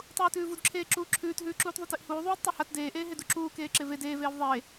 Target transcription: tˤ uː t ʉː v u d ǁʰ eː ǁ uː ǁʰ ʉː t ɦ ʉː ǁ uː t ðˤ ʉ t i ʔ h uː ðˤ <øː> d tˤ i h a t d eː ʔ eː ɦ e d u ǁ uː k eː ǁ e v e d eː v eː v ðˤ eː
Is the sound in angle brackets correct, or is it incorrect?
incorrect